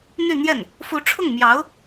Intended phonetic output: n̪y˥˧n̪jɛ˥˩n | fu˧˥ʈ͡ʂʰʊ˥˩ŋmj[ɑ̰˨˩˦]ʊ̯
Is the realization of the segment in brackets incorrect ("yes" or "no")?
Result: yes